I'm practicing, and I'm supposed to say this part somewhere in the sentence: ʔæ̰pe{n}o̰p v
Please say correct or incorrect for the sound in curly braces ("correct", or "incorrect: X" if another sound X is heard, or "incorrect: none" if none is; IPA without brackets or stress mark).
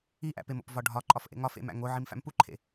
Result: incorrect: m